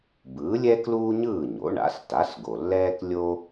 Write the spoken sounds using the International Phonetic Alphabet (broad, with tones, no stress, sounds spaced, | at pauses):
b ɯː˩˥ lʲ ɛ˥ k l uː˥ ɲ ɯː˥˩ ɲ o̰˩˥ ɳ a̰˩˥ s t a˩˥ s ɡ o˩ lː ɛː˥ k lʲ o˥